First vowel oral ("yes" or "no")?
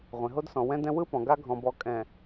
no